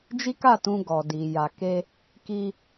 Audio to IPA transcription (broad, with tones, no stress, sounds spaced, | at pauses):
d͡ʒ i˦ k a˦˨ t ũ˧ ɡ ɔ˨ d i˨ j a˨ k e˧ | k i˧